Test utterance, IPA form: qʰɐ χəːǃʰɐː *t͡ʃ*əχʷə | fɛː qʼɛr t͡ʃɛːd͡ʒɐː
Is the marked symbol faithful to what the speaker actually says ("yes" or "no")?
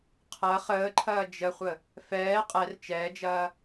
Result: no